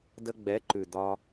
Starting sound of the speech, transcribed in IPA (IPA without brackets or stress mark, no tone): d